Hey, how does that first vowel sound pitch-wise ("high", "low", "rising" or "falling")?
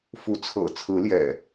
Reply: rising